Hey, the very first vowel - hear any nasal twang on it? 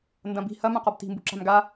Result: yes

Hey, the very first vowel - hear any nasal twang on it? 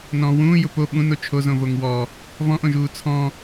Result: yes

